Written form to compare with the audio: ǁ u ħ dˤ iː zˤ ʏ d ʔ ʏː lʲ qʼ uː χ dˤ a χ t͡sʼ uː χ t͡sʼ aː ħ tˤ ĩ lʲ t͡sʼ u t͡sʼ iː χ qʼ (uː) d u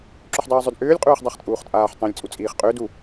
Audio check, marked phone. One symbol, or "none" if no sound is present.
ʏː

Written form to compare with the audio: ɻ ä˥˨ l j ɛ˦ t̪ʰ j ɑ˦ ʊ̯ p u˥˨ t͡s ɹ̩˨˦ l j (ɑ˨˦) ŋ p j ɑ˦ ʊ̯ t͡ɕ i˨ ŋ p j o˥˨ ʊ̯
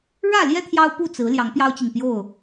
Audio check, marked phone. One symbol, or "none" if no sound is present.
ɑ˨˦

